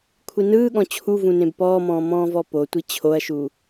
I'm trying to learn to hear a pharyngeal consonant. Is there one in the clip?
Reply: no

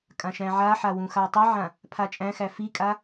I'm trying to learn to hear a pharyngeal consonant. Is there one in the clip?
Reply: yes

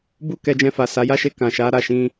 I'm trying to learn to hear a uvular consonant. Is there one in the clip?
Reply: no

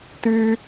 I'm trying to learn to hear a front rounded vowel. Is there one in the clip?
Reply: yes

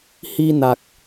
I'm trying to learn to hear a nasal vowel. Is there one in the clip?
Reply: no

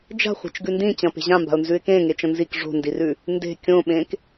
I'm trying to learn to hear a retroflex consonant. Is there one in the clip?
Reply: yes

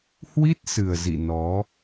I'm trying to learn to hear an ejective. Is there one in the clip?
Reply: no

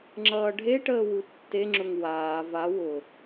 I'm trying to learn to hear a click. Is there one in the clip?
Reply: yes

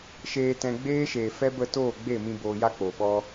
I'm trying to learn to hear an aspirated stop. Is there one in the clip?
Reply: no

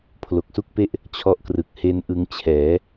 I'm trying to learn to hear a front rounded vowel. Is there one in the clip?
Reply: no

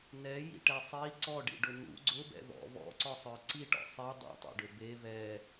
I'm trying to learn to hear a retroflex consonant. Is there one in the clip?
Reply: yes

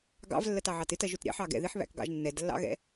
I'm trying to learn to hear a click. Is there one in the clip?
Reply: no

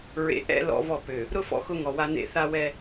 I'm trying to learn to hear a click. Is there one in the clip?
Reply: no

